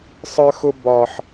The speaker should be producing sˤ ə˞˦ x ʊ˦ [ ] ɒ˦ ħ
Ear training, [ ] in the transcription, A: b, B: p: A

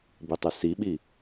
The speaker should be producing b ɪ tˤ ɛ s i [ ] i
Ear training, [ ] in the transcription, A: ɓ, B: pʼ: A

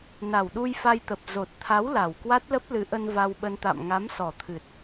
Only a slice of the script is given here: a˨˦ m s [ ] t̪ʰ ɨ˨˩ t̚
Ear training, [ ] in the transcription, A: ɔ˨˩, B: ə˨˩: A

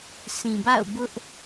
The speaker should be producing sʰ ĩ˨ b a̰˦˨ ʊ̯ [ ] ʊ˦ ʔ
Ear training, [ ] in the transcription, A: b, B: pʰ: A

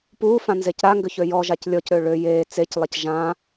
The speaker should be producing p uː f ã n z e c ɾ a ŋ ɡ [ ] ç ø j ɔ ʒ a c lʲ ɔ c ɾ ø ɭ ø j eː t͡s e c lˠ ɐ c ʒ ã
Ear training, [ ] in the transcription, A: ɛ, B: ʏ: B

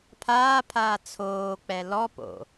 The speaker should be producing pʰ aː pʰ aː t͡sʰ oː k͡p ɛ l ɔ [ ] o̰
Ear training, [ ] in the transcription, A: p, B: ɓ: A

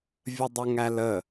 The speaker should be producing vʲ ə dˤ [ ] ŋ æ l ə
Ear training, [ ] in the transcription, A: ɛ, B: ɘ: B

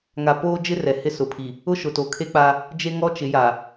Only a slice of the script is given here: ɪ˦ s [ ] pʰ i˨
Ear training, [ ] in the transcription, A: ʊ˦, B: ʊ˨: B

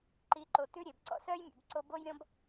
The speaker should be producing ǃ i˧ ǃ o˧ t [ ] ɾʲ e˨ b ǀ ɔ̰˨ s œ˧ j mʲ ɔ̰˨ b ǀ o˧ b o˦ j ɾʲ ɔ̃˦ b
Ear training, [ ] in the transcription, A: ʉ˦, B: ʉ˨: A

